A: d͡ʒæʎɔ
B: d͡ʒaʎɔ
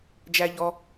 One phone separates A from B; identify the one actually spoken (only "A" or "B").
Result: A